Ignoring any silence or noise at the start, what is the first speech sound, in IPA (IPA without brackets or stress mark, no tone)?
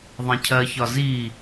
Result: ðˤ